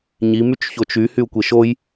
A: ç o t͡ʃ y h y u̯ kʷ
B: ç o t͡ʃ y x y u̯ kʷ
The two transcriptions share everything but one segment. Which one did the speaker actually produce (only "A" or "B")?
A